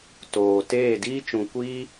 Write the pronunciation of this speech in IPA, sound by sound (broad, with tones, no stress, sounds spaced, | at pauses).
t oː˨ t eː˦˨ d iː˦ t͡ʃ ũ˨ kʷ iː˦